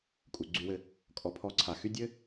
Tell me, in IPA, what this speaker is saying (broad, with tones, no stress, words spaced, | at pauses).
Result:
kʼu˩ɡ͡ǀy˨wɘ˨ | kʼɔ˩pʰɔ˨ǀʰa˩xy˦ dʲɘ˥